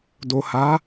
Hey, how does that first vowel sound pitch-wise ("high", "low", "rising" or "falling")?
low